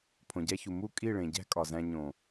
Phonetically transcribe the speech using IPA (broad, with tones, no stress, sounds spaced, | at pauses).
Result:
pʰ õ˨ ɟ æ˧ ç u˨ m u˦˨ kʼ i˦˨ ɭ ẽ˨ ɟ æ̤˦ kʼ ɒ˨ z æ̃˧ ɲ õ˨